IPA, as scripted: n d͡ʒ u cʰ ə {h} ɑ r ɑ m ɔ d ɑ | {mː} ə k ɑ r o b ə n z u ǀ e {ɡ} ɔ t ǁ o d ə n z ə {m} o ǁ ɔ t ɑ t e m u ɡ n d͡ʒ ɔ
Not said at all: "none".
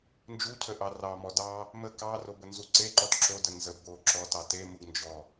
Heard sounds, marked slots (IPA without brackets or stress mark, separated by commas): ʔ, m, ǃ, b